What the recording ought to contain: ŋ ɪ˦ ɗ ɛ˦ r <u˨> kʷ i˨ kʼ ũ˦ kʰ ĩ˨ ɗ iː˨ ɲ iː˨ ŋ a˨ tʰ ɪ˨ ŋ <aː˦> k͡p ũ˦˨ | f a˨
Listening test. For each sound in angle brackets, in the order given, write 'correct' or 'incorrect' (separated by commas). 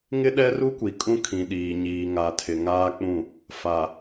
incorrect, correct